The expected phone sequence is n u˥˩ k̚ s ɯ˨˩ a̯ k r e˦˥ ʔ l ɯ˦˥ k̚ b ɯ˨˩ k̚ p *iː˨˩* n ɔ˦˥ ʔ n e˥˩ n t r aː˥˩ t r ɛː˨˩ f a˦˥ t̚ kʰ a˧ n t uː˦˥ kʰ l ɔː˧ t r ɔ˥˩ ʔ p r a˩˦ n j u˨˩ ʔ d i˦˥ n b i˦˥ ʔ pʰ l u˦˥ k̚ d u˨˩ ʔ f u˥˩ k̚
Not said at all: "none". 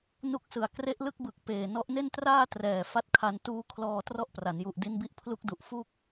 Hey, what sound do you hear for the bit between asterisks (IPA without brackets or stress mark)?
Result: eː˨˩